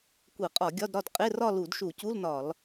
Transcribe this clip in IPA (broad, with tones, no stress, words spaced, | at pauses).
kʷe˧˩˧qʼɒ˧˩˧ ɡʲɒ˧˥˧dɾɒ˥˨d qʼe˧˥˧rɒ˥˨ lu˧˩˧dʃu˧˩˧cu˧˥˧lnɒ˧˩˧l